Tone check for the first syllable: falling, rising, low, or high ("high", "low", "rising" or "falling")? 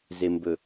low